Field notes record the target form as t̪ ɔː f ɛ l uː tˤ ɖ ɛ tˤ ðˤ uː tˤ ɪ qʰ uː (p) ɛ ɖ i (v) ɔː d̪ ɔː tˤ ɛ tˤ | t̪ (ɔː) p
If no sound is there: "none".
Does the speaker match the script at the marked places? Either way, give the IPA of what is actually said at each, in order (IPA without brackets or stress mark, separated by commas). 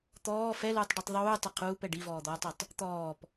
p, v, ɔː